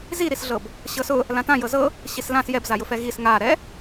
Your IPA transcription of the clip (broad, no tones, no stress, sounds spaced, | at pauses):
z i ɾ i s ɮ ɤ b | ɕ ɤ s ʊ | l ã t ã j ɤ z ɤ | ɕ i s l ã s j ɛ b z a j ʊ f ɛ ɣ i s ŋ a ɾ ɛ